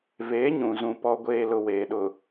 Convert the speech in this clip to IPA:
v eː˨˦ ɲ ũ˨ z ũ˨ p ɔ˨ ɡʷ eː˨ l ʊ˨ w eː˨ ɗ ʊ˨

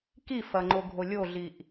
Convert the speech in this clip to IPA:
k i f ɐ ŋ͡ǃ o ɡʱ o lʲ o ɮ i ʔ

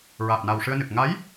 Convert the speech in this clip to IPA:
ɹ aː˨˩ p̚ n a˨˩ w ʂ ɨ˧ ə̯ n ɨ˨˩ k̚ ŋ a˧˥ j

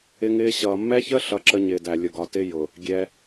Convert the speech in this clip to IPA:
ɪ˦ ŋ ɪː˦ ɕ ʌː˨ mː ɛ˦ ç ə˦ ɬ ʌ˦ ǁ ə˦ ɲ ɪː˨ d æ˨ lʲ ʊ˨ ɡ ɒ˨ t ɪ˦ j ʊ˨ | ɡʲ ɛ˦

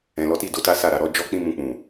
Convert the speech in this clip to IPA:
ɛ̃˨ l ɔ˨˦ t i˦˨ d o˨˦ t a˦ s a˦˨ ɾ a˨ ɾ ɔ˧ d͡ʒ ɔ˦ k͡p ĩ˦ m ũ˧ k͡p ũ˨

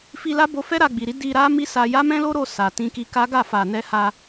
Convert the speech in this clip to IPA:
f i˧ l a˦ b o˧ f ɛ˦ ɾ a˧ ɡ͡b i˨ ɾ i˨˦ d i˧ ɾ a˦ m i˦ s a˧ j a˦ m ɛ̃˦ l o˦ ɾ o˦˨ s a˨ t ĩ˧ k i˧ k a˦ ɡ a˦˨ f a˨ n ɛ˧ h a˧

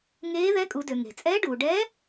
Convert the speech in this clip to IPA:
ŋ eː˧˥ ð ɛ˧˥ kʼ u˩˧ d ø˩ ŋ e̤˩ t͡sʼ ɛː˧˥ ɖ uː˩ ɖ ɛ˧˥

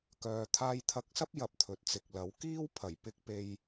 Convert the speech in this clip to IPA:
k œː˨ t̪ʰ aː˧ j t̪ʰ ɐ˧ k̚ s ɐ˥ p̚ j ɐ˨ p̚ t̪ʰ ɵ˨ t̚ t͡s ɪ˨ k̚ l ɐ˨˥ w k iː˥ w pʰ ɐ˨˩ j p ɪ˧ k̚ p e˧ j

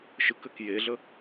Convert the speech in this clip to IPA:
ʃ ɯ k ɘ k j e ɮ ə

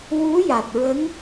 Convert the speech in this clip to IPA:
w u˧˥ j a˨˩ t̚ ɹ ə˧˥ ŋ

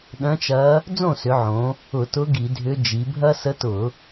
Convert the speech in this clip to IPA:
ɗ œ̃˧˥ t͡ʃ ɐ˧˥ | d͡z õ˥˨ s ʏ˩˧ ʕ õ˩˧ | ʊ˧˩˧ t ʊ˧˥ ɡ i˧˩˧ dʱ ʏ˧˥ d͡ʒ i˩˧ bʱ ɐ˥ s ə˧˥ t ʊ˧˩˧

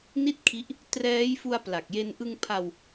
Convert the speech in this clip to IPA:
n i˥˩ t̚ kʰ i˦˥ ʔ | t r ɛː˦˥ j f u˧ a̯ p l a˨˩ k̚ j e˧ n ʔ ɯ˧ ŋ pʰ a˧ w

